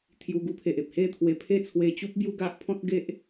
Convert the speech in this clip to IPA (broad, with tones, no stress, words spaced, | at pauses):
t̪ʰju˧ɡu˦pʰe˨ʔ e˨p̚he˥˧t̪ʰwe˧pʰe˥˧ t͡sʰwe˧t͡ɕu˦p̚ bju˦ɡa˦ʔ pʰɔ̃˦t̚ɡe˦ʔ